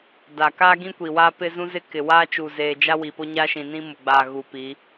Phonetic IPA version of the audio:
d a˨ k aː˦ ɡ ĩ˦ kʷ i˨ w aː˦ p ɪ˦ z ũ˦ z ɪ˦ k ɪ˨ w aː˦ t͡ʃ u˨ z eː˨ d͡ʒ a˦ w i˨ p o˦ ɲ a˦ ʃ ĩ˨ n ĩ˦ m ʊ˨ ɡ͡b aː˨ ɣ u˨ p i˨˦

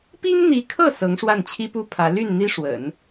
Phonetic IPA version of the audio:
p i˥ ŋ n̪ i˧˥ kʰ ɤ˥˩ s ɤ˧˥ ŋ ʂ w a˥˩ n t͡ɕʰ i˥ p u˥ pʰ ä˧˥ l y˥˩ n n̪ i˥ ʂ w ə̰˨˩˦ n

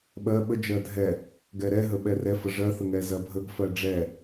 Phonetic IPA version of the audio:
ɓ ɜ ɓ ə d͡ʒ ɜ dʱ ɛ | ɡ ɛ ɾ ɛ ɦ ə ɓ ɛ r ɛ f ə ʐ ɜ θ ə ŋ ɛ z ɜ bʱ ə ɡ f ɜ ɖ͡ʐ ɛ

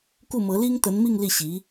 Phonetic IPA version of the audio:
k u˥˩ m ɤ˧˥ l i˥ ŋ t̪ ə˧˥ n m i˥˧ ŋ l i˥˩ ɕ i˧˥

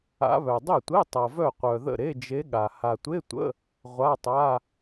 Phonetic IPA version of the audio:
a̰˧˥ β œ˨ dˤ ɛ˥˩ tʷ e˧˥˧ tˤ ʌ˨ v œ˥˩ qʷ œ˨ ð ə̰˥˩ ɾ e˧˥˧ d͡ʒ e˧˥ ɠ a˨ h a˨ tʷ e˧˥˧ tʷ ə̰˧˥˧ | ʁʷ a˧˥˧ tˤ a˧˥˧

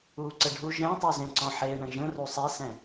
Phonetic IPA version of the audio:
uː ǀ ə ɖʱ u ʒ ɛ̃ tˤ u z ẽ ǀ ɔ̃ ħ eː ɳ ə̃ ʒ ə̃ r u sˤ e s ɛ̃

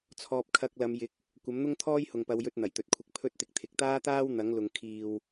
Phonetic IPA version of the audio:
t͡sʰ ɔː˧ p̚ kʰ ɐ˧ k̚ l ɐ˨˧ m j ɪ˨˥ k̚ | kʷ ɐ˨˥ m n̪ ʊ˥ ŋ t̪ʰ ɔː˥ j h ʊ˨ ŋ p ɐ˨˧ w j ɵ˧ t̚ n̪ ɐ˨˩ j t̪ ɵ˨ t̚ kʷʰ ɪ˧ k̚ pʰ ɵ˥ t̚ t̪ ɪ˧ k̚ t̪ʰ ɪ˨ k̚ t̪ aː˥ t̪ aː˥ w n̪ ɐ˨˥ ŋ l ʊ˨ ŋ kʰ iː˨ w

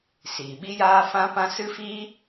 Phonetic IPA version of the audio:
s iː˨ ɓ i˦ j aː˦ f ã˦ p ã˦ s ɨ˦ f iː˦

